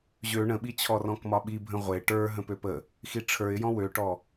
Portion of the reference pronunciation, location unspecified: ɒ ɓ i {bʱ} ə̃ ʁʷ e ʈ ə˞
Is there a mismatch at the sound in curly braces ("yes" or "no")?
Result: no